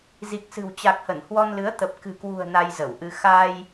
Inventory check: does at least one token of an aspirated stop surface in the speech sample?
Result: no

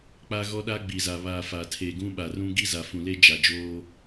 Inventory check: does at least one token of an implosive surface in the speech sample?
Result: yes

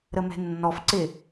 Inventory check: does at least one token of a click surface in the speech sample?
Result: yes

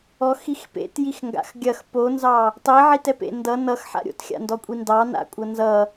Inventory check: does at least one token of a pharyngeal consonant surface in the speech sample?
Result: yes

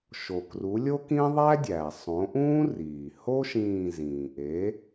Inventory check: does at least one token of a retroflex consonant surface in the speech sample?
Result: no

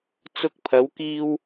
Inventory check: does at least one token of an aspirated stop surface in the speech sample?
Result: yes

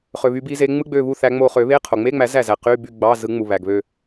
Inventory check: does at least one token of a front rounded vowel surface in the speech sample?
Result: yes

